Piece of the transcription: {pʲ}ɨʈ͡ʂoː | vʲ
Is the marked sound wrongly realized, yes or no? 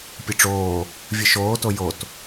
no